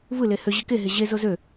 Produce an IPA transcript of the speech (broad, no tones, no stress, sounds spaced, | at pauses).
v ɯ l e h ø ʑ ɯ k e ɦ e ʑ e z o z ø